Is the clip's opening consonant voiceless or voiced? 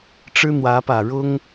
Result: voiceless